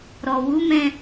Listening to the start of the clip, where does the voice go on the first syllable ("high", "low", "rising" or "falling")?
low